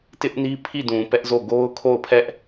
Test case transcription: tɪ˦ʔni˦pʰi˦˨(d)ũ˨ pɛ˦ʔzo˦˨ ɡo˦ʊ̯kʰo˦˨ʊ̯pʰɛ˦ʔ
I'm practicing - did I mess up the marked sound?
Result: no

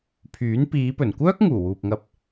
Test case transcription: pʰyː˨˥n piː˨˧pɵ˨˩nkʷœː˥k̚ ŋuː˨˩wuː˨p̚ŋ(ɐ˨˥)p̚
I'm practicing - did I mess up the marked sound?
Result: yes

